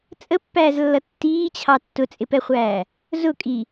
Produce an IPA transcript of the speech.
t͡sʼ ə pː æː z lː ʌ tː iː t͡ɕʰ ɑ tː ʊ t͡sʼ ɪ p ɛ χʷ æː | z ʊ kʼ i

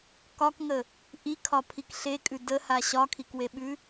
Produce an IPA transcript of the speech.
k ɒ k ŋ ə | ʔ i kʰ ɒ pʰ i k ɬ e kʼ ʉ d ə h a ɕ ɒ kʰ i k w e ɓ ʉ

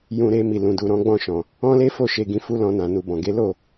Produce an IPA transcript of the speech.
j ũ˧ ɾ e˧ m i˨ l ũ˨ d u˨ ɾ ɔ̃˨˦ ɡ͡b ɔ̃˦˨ ʃ ɔ̃˨ | ɔ̃˦ l e˦ f o˦˨ ʃ e˧ ɡ ĩ˧ f u˦ l ɔ̃˧ n ã˨ n u˨ b ɔ̃˨ ɡ e˨˦ l o˦˨

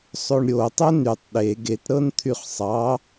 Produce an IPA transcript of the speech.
sˤ o ɳ ɾʲ o tˤ o n y tˤ ɗ e ɡ e t ɾ ɤ n t̪ʰ y χ sˤ ɑ

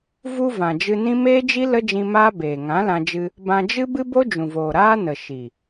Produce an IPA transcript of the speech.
v u˧ v ã˨ d͡ʒ ɨ˧ n ĩ˦ m eː˦ d͡ʒ i˦ l ə˦ d͡ʒ ĩ˧ m aː˦ b eː˨ ŋ ã˨˦ l ã˧ d͡ʒ ɨ˧ | b ã˧ d͡ʒ ɨ˦ b ɨ˦ b o˦ d͡ʒ ũ˨ v oː˨ ɾ aː˦ n ə˨ ʃ i˨

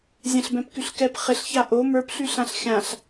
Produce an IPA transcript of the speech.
zʲ ɛ̃ ɬ b ɛ̃ p k y ɬ k ɛ p χ ɪ ɬ ç a ʔ o m ə˞ p ɬ y ɬ ã ɬ xʲ ã ɬ

